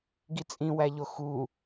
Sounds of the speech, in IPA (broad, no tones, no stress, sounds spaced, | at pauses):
ɡ i t͡sʼ ĩ w æ ʎ o x u